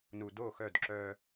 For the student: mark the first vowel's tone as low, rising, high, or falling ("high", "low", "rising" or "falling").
low